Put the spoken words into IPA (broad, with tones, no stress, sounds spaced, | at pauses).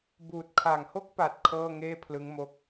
b uː˨˩ t̚ kʰ a˨˩ ŋ h o˥˩ k̚ p a˨˩ t̚ kʰ ɤː˥˩ ŋ eː˥˩ pʰ l ɯ˦˥ ŋ m o˦˥ k̚